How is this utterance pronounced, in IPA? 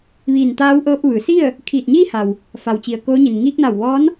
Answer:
ʋiː˧˩nt̪aː˧˥wʔɤː˧p̚ ʋɯː˩˧si˥˨ə̯ | kʰiː˧˩t̚ɲiː˥˨ha˩w | fa˩wt͡ɕi˩ə̯ koː˧˥ɲi˩n ŋiː˧k̚na˧˩wʋɔː˧˥n

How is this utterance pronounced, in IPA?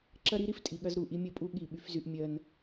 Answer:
ǁɐ˦ɾi˦ ɾi˦ftʼi˨ ɠɐ˦zɾu˦˨ʔi˦ mʲə˦˨pʼu˦ ɠi˦˨ɓy˦fzy˦ʔ mʲɜ˦n

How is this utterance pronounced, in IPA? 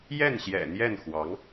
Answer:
jɛ˥˩nɕjɛ̰˨˩ n̪jɛ˥˩nxwɑ˧˥ŋ

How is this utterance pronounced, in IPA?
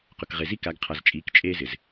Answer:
qʊ˨kʁe˨zi˦ ka˨˦ɡqʰa˨z t͡ʃʼiː˨˦kt͡ʃʼeː˦zɪ˨z

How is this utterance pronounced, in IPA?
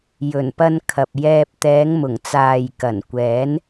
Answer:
jɵ˨˩npɐ˧nkʰɐ˨p̚jɛː˧p̚ t̪ɛː˨˧ŋmʊ˨˩ŋt͡saː˨j kɐ˨˩nkʷɛː˨˥n

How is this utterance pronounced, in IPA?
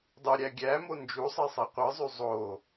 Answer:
dˤɯɾʲæ ɡʲæmo nd͡ʒusˤe sˤiqʷɯzˤy zˤo

